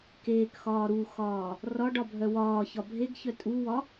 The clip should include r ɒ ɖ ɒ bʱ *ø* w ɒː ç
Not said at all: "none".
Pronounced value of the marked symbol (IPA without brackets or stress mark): œ